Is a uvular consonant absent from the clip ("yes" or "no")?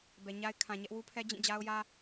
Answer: yes